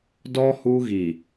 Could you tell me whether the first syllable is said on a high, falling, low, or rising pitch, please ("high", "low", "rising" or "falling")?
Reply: high